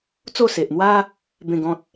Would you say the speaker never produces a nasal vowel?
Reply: no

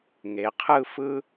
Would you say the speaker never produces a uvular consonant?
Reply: no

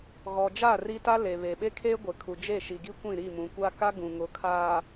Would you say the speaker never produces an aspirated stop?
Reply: no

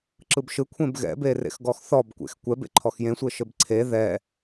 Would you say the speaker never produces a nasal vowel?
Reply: no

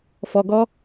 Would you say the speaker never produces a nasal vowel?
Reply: yes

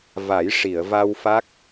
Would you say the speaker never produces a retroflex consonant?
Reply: no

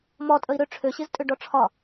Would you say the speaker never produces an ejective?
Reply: no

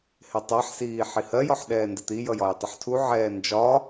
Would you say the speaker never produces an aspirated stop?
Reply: no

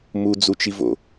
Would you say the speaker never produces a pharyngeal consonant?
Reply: yes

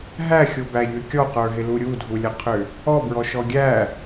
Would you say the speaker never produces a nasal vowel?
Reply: yes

